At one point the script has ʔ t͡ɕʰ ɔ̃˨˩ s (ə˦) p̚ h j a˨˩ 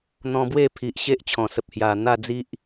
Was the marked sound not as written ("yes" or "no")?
yes